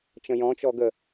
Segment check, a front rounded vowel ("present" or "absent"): absent